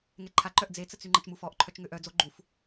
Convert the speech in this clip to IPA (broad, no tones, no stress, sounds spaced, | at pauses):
ŋ ɛ ǃʰ a ǃ œ ʔ d͡z e t͡s ə t͡s y ŋ͡ǃ ə t͡ʃ m u f ɔ ʔ ǃʰ œ t͡ʃ ŋ ø ʔ œ d͡z o ɡ͡ǃ u f